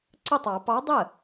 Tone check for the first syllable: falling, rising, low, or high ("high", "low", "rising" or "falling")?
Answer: falling